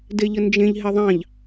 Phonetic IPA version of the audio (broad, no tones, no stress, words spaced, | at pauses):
deʎənd͡ʒẽʎ ɦeðˤɑ̃ʎ